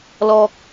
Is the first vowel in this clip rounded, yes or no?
yes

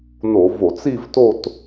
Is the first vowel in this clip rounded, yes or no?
yes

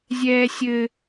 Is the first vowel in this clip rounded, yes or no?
no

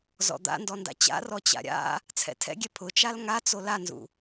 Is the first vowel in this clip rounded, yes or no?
yes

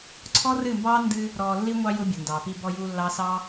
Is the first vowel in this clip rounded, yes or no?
yes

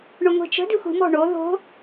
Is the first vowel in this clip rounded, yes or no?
yes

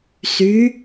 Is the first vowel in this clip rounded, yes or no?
yes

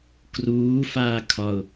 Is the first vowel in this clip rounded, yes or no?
yes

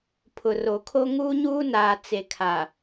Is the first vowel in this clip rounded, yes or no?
yes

